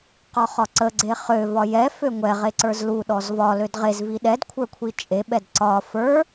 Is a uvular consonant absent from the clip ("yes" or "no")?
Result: no